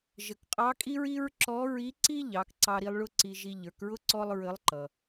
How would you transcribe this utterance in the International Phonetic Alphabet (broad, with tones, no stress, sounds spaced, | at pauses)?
ʒ ə˩ k qʼ ɑ˧˥ kʼ i˥ ɹ i˥ ɹ ǁ ɔ˧˥ ɹ i˧˥ ǀ i˥ ʎ ɑ˩˧ k ǀ ɑ˧ ɾ i˧ lˠ ɭ ʊ˥ ǀ i˧ ʒ i˧ ʎ ə˞˩˧ k ɹ ʊ˥ ǀ ɔ˥ lˠ ɹ ə˧˥ lˠ ǃ ʌ˩